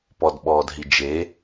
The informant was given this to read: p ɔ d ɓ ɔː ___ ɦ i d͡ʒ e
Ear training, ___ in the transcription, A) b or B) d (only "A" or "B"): B